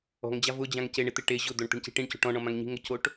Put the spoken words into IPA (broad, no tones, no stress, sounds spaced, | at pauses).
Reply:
ɔ̤ ŋ d͡ʑ a v ʊ d͡ʑ ã ŋ c e ɳ ɪ t̪ ɪ ʈ e ʑ ʊ d̪ o ɳ t̪ i̤ ɳ c i̤ ʈ ĩ ɳ c o̤ ʈ ɔ̃ ɳ ɔ̃ m ã ŋ ɲ i̤ ŋ ʊ c o ʈ